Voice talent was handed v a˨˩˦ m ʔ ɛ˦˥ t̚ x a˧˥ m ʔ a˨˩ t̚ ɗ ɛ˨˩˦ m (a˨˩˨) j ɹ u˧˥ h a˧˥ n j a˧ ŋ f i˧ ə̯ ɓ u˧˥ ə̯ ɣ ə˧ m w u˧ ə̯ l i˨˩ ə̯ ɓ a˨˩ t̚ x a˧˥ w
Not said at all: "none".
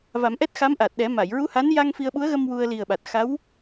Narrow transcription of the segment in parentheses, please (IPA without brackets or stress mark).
a˨˩˨